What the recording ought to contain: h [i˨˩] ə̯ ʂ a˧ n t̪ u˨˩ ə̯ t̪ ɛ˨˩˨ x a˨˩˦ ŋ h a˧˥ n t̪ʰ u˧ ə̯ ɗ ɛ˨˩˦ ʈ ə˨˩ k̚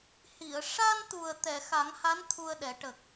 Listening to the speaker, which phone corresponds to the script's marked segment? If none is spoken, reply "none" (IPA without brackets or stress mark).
i˨˩˨